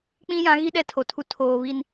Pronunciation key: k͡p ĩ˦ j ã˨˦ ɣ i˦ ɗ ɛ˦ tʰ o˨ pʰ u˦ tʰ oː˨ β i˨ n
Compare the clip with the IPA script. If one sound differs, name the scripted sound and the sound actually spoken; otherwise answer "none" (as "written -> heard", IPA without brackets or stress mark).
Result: pʰ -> tʰ